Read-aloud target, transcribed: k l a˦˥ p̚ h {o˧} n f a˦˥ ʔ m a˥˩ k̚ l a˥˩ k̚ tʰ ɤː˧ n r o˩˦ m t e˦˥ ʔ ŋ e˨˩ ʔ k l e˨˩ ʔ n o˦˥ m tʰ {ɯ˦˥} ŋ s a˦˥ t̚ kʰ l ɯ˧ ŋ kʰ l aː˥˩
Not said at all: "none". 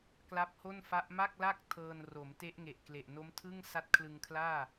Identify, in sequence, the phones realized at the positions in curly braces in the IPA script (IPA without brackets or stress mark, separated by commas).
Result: o˥˩, ɯ˥˩